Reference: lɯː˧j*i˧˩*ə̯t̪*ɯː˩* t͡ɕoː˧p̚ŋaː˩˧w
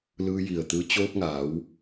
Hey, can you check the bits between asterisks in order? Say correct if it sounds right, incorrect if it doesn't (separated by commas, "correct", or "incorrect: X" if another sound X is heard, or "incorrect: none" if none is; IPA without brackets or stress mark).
correct, incorrect: ɯː˧